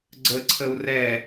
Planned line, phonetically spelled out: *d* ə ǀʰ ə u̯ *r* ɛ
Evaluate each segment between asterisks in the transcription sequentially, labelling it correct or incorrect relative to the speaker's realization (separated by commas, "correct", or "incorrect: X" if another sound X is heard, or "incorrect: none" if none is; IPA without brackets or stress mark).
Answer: incorrect: ɡ͡ǀ, correct